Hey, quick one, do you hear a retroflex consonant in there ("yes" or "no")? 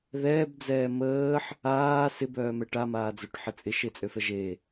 yes